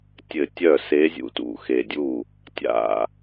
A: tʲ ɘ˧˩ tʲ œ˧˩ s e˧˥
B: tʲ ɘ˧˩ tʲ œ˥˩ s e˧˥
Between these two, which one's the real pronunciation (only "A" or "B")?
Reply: B